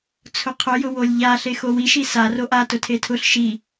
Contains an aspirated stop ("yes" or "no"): yes